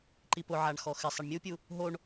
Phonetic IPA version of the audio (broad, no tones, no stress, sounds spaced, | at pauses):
ǃ i p ʊ ʕ a ɳ x ɔ x ɪ sˤ e ɳ mʲ u pʲ u | ɦ o ɳ